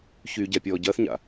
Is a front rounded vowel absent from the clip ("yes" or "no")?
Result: no